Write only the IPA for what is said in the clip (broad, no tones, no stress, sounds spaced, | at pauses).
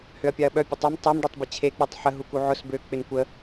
h ø ɐ̯ pʲ a ɐ̯ ɓ œ pʲ ə tˤ œ m tˤ ɪ m ɖ e tˤ b ə t͡ɕʰ e k͡p u tˤ ħ ə ɦ u k u ʕ ʊ s b ø k͡p ɪ n kʷ ə